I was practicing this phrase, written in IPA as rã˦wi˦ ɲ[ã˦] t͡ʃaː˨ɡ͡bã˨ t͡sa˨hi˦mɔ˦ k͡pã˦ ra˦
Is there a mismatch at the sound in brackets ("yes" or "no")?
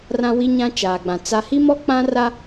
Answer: no